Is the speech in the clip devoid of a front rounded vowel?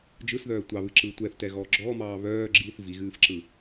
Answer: no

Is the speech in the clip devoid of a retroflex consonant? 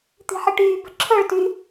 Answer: no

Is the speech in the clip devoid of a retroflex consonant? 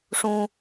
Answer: no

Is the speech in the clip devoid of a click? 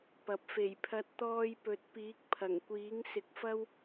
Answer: yes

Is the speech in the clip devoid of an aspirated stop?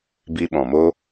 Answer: yes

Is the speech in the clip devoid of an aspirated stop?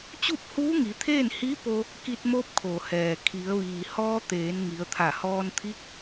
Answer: no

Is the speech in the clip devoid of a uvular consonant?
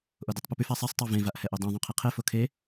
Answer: no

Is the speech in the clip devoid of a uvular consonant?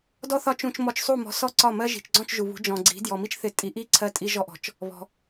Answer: yes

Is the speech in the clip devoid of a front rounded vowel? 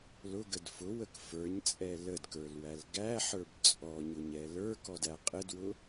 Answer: yes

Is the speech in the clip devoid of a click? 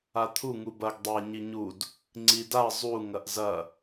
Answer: no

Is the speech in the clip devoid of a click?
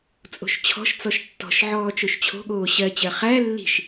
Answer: yes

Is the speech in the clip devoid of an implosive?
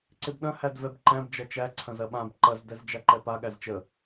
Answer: no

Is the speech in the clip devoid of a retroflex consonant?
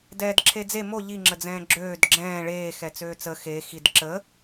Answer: no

